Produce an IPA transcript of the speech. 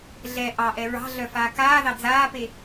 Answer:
ɮ ɛ ʔ ɑ ʔ ɛ ɹ ɑ̤ ɮ œ f aː k aː ð ɑ d͡z aː p e

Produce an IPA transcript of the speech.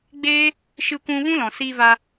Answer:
ɡ͡b eː˦ | ʃ ɨ˧ kʷ ũ˧ v ũ˦ l ɔ̃˨ s iː˧ v a˧

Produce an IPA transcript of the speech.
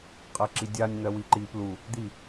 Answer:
qʼ ɜ ǁ i dʲ a nʲ n̪ ɜ w i ǃ i p l u | d̪ i

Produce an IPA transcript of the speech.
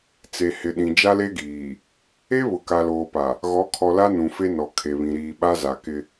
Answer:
t͡s e˨ h ɪ˨ ɗ ĩ˨ d͡ʒ a˦ l e˦ ɡ iː˨ | e˦ β ʊ˨ k a˨ l oː˨ p a˨ | ɣ ɔ˨˦ kʰ ɔ˨ l a˦ n ũ˨ f e˦ n ɔ˨ kʰ e˨ β ĩ˨ ɾ iː˨ ɓ a˦ z a˨ k ɪ˦

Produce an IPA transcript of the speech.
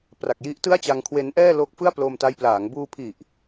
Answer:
p r a˨˩ k̚ j i˦˥ ʔ t ɯ˥˩ a̯ t͡ɕ a˧ ŋ kʰ w e˦˥ n ʔ ɛː˥˩ l o˦˥ k̚ f ɯ˥˩ a̯ p l o˧ m t a˦˥ j p l aː˩˦ ŋ b uː˧ pʰ i˨˩ ʔ

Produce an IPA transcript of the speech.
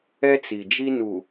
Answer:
ɛ˦ t͡s i˨ d͡ʒ i˦ n u˨

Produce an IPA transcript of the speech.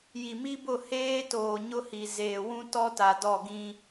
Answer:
j i˨ m i˦ b ʊ˦˨ h eː˦ t oː˨ ɲ ʊ˦ h i˨ z eː˨ w ũ˦ t ɔ˦ t a˨ d ɔ˦˨ ɡ ĩ˦

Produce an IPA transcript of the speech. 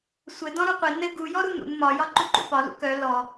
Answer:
sʷ ɘ d ɔ̃ ɾ u qʷ e n ɘ ɡ u j ɔ ɾ u n ṵ n m ɒ j ɒ ǃ u ǃ ṵ p ɒ l ṵ k œ l ɔ

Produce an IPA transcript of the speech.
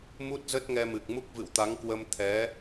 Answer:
m u˦˥ t̚ z ə˦˥ t̚ ŋ ɛ˧ m ɨ˨˩ k̚ m u˦˥ k̚ v ɨ̰˧˨ w t̪ a˨˦ ŋ k w ə˧ m t̪ʰ ɛ˨˦

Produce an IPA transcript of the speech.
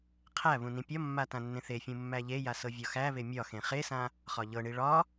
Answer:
qʰ æ β ũ n ĩ pʲ ɒ mː a t ã nː ẽ θ e fʲ ũ mː æ ʎ e j a s ɤ vʲ ɒ x æ β e mʲ ɒ x ẽ χ e s ã | χ ɒ ʎ ɤ ɳ i ɭ ɒ

